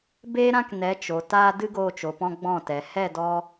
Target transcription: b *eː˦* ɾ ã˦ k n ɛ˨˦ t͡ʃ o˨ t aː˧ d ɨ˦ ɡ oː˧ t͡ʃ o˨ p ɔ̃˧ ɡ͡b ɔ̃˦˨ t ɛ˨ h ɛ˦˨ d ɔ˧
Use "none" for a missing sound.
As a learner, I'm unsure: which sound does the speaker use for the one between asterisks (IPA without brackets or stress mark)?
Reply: eː˦